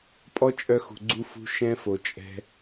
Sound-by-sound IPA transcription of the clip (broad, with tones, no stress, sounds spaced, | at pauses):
pʼ ɔ˦ t͡ʃʼ œ˧ x ṳ˨ ɡ͡ǀ u˧ f ṳ˧ ʃ ɛ̃˦ f o˨ t͡ʃʼ ɛ̤˧